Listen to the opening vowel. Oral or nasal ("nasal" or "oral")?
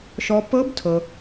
oral